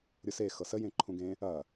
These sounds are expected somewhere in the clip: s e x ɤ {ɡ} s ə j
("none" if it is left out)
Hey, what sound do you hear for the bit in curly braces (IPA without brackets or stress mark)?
none